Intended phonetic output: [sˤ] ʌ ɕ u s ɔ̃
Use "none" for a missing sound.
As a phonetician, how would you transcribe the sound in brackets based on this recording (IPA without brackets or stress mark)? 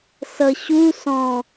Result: s